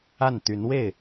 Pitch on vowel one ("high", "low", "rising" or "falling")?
falling